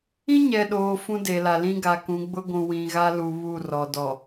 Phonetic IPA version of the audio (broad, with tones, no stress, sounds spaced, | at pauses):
ĩ˦ ɲ ɛ˨ ɗ oː˨ f ũ˦ d e˨ l a˨ l ĩ˦ ɡ a˨ k ũ˨˦ ɡ͡b ʊ˦ ɡʷ ũ˨ w ĩ˨ ɣ a˦ l u˨ β u˦˨ r ɔ˨ d ɔ˨